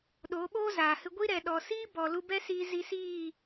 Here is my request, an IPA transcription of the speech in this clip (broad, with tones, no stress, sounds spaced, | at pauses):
ɗ oː˨˦ ɓ oː˦ z aː˨ h ɨ˧ ɡʷ i˦ ɾ ɛ˨ ɗ ɔ˨ s iː˦ b ɔ˨ l u˧ b ɛ˦ s iː˧ z i˧ s iː˦˨